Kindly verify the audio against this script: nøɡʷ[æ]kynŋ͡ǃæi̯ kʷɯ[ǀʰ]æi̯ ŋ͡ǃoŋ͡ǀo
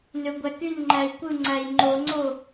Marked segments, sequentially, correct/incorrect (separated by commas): correct, incorrect